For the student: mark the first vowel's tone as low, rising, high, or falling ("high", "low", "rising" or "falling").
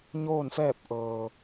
falling